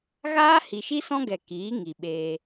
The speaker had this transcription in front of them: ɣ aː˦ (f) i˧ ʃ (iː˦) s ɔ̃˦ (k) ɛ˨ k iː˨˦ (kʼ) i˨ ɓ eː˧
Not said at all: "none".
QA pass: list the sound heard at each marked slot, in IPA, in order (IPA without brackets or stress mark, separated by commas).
h, i˦, ɡ, ŋ